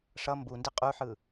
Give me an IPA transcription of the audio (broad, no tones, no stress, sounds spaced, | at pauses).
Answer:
ʂ ʌ m b u n d i qʼ u ħ ɯ